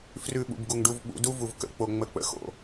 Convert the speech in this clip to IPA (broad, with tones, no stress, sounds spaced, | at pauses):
f r ʉ˨ ɓ ṵ˨ b ɡ u˨ ŋ ɖ u˧ v ɓ ṵ˧ d u˦ v u˨ v k ə̰˧ k͡p o˨ ŋ͡m ə˧ k͡p ə̰˧ x o̰˧